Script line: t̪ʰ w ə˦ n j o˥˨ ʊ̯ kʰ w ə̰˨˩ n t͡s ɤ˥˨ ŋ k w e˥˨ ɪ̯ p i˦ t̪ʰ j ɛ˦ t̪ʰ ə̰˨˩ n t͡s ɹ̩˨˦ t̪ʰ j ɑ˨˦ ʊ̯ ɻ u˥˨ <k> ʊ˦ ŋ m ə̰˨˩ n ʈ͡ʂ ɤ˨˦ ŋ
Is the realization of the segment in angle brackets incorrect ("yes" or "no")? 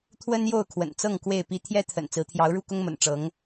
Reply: no